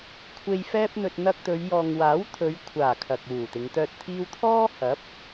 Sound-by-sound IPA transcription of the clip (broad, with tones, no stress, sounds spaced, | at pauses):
kʷʰ e˧ j f ɛː˥ p̚ n̪ ɵ˧ t̚ n̪ ɐ˧ k̚ t̪ ɵ˨˧ ɥ j ɔː˨ ŋ w aː˨˥ w t̪ʰ ɵ˨˧ ɥ kʷʰ aː˨˩ kʰ ɐ˨ k̚ w uː˨˩ t̪ ɪ˨˧ ŋ t̪ œː˧ t̚ t̪ʰ iː˥ w t̪ʰ ɔː˥ h ɐ˨˥ p̚